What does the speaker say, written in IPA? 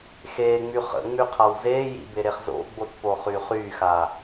x eː ŋ͡m y χ ə̰ ŋ͡m y qʰ a w z eː j ḭ b e ɾ e χ z o̰ ɡ͡b o t p o χ y χ yː x a

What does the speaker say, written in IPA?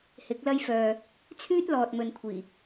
h ɪ˨˥ k̚ l ɐ˥ j f œː˨ | t͡sʰ yː˥ t̚ l ɔː˨ t̚ m ɵ˧ n kʷʰ iː˨˩

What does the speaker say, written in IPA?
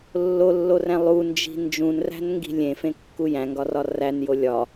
lː o lː o r æ̃ lˠ u n d͡ʒ i̤ n d͡ʒ ũ n r æ̤ n ŋ ɡ i̤ lʲ ẽ f ẽ kː u j æ̃ ŋ ɡ ɒ r ɒ r æ n j o lʲ ɒ

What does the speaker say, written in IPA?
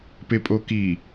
p e pʼ o k i

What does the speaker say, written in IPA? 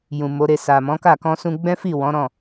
j ũ˨ m o˨˦ ɾ e˧ s a˨ m ɔ̃˨˦ k a˦˨ k ɔ̃˧ s ũ˧ ɡ͡b ɛ̃˦ f i˦˨ w ɔ̃˨˦ ɾ ɔ̃˦˨

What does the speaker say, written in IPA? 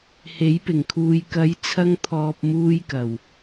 h e˨˥ j p ɪ˨˩ ŋ kʰ uː˨ j k ɐ˨˥ j t͡sʰ ɐ˧ ŋ t̪ʰ ɔː˨ p̚ m uː˧ j k ɐ˨˩ w

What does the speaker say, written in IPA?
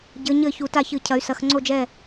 ɟ ɘ˩˧ ɲ ɘ˧˩˧ ç u˩˧ t a˥˩ ç ɨ˧˩˧ cʰ ɐ˩˧ y̯ s ɐ˩˧ x ŋ͡ǀ o˥˩ d͡ʒ ɛ˥˩

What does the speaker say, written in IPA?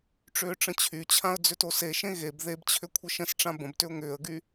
ʈ͡ʂ ʏː ʈ͡ʂ ə̃ t͡ɕʰ y t͡ɕʰ ã ə̯ d͡z ʏ t o s e ʃ ẽ ɣ e b ð e b t͡ɕʰ ʏ kʷʰ ə ʃ ə̃ s ʈ͡ʂ ã b ə̃ b t ʏ ʊ̯ ŋ ʏː ə̯ ɡ y

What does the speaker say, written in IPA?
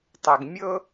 tˤ ɛ˩ ɡ mʲ ɤ˥

